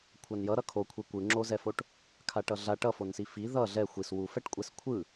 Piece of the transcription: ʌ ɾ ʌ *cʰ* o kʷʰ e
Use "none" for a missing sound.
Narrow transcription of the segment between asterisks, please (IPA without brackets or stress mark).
kʰ